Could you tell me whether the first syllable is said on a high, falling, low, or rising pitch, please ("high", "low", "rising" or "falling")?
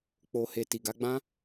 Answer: low